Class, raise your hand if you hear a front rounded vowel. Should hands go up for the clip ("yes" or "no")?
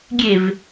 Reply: no